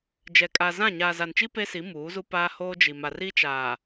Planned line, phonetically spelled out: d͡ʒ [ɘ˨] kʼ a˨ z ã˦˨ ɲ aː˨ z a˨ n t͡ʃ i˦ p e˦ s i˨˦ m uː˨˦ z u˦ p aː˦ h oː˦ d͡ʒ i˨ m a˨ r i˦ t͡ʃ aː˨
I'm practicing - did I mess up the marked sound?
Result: yes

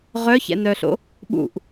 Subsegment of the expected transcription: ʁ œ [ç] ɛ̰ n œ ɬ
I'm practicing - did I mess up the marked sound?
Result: no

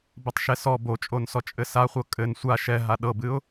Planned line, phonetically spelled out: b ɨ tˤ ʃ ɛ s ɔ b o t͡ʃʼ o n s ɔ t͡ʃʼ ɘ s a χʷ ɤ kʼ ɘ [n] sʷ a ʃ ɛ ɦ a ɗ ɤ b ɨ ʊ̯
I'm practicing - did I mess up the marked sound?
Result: no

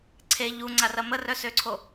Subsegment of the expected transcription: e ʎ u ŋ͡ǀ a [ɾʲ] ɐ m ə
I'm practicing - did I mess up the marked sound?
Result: yes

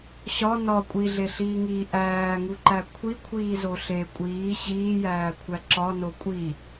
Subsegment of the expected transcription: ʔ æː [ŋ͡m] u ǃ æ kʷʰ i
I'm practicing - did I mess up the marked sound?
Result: yes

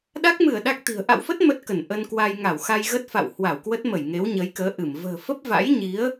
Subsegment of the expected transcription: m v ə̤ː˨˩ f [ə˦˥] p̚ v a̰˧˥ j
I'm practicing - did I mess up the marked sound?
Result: no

